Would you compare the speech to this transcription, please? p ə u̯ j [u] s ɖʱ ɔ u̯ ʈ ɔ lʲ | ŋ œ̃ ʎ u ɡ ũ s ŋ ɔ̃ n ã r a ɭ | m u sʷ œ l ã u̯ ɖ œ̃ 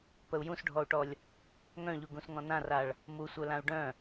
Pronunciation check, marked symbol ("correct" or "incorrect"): incorrect